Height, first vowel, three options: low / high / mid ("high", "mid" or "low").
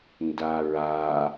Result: low